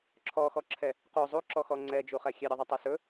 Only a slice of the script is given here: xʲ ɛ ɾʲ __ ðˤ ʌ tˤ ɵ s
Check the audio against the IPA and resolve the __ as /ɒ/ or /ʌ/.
ʌ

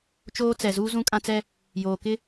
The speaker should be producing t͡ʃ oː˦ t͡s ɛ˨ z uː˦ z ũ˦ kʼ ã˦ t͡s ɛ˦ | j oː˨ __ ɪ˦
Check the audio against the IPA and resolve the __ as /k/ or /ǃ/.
k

